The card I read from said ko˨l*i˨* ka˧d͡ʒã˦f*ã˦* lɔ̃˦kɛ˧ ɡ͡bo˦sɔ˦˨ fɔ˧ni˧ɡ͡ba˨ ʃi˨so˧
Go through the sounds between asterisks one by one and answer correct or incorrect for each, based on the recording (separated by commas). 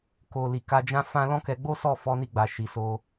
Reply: correct, correct